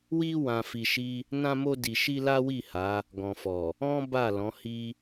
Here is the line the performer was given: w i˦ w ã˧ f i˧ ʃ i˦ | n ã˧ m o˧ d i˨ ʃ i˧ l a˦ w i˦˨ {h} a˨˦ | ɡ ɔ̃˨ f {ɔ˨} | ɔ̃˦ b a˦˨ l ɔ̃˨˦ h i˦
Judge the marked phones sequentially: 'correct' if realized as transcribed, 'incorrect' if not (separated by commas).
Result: correct, correct